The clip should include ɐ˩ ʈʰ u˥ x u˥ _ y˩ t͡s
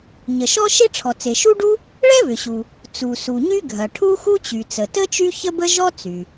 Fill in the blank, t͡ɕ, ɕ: t͡ɕ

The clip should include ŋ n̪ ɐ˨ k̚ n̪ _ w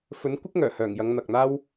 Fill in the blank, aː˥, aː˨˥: aː˥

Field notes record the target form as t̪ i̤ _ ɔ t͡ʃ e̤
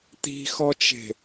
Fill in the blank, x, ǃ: x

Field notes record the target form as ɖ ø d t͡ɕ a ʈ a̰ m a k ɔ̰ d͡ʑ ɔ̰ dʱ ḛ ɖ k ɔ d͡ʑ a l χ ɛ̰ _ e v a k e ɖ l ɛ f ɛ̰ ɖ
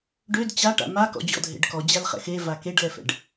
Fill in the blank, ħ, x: x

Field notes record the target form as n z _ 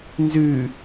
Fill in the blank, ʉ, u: ʉ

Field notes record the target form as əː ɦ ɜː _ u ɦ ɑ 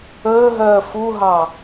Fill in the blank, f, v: f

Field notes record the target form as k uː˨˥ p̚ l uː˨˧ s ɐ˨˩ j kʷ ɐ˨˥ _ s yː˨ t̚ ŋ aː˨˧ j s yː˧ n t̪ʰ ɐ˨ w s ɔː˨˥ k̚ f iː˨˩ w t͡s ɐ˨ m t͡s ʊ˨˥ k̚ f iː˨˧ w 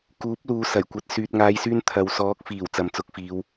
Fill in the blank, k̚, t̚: t̚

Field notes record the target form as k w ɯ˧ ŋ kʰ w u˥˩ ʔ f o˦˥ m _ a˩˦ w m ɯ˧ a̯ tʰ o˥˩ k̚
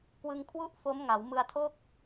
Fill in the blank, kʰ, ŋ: ŋ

